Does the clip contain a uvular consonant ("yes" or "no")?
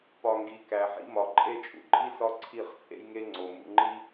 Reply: yes